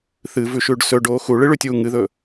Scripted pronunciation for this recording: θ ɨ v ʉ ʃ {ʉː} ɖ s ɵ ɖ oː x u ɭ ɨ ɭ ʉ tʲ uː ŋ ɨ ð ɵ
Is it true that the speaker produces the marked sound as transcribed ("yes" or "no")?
yes